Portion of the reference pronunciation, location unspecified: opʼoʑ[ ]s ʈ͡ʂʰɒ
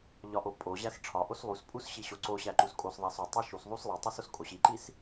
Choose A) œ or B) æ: B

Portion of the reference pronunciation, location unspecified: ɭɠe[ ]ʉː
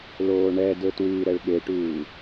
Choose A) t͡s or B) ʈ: B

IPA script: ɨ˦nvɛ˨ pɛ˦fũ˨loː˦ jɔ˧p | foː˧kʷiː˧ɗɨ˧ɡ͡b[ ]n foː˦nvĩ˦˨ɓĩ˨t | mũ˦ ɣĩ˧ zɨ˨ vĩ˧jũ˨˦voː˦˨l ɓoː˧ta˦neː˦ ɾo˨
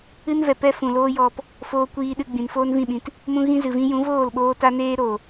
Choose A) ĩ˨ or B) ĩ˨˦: A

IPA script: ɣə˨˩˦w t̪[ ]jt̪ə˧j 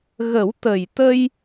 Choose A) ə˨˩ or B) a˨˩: A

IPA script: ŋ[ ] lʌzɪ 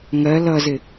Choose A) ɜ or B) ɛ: A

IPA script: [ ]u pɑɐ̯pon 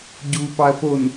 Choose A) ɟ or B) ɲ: A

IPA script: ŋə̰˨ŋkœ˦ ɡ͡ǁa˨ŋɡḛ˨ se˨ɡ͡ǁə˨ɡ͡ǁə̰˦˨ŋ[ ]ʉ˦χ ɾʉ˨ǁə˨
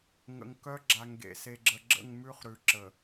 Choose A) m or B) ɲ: A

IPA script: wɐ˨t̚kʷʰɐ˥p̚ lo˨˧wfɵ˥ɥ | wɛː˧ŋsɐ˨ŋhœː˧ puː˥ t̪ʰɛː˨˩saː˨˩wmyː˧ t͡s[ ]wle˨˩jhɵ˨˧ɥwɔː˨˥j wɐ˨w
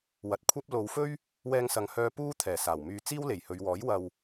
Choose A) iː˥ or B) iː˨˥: A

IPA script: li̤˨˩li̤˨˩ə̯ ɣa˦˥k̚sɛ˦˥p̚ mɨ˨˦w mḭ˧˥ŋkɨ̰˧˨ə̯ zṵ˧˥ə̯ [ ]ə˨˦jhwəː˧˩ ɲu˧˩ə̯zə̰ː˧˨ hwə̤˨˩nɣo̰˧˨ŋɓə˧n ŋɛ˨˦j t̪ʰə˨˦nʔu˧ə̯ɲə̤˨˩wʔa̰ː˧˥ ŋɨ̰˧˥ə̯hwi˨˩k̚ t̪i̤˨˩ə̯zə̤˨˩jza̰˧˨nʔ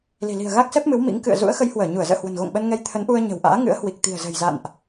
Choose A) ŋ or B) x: B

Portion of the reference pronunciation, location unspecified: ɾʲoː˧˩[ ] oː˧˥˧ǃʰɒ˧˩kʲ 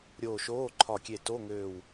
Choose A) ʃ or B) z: A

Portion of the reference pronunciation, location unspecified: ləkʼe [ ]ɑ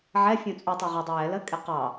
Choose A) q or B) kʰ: A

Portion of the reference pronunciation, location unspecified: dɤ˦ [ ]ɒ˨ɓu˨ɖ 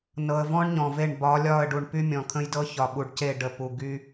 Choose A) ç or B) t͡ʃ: A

